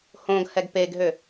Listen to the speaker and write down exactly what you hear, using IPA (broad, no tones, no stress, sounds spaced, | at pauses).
h õ ɡ h ɛ ɡ p e ɡ ɦ ø